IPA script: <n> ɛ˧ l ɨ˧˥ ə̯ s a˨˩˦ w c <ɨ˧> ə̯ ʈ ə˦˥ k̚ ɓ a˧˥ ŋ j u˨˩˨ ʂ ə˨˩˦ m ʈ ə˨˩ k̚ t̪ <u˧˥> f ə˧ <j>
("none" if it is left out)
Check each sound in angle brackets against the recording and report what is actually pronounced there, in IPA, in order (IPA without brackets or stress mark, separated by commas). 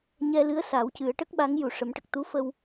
ɲ, ɨ˨˩˦, u˧˥, w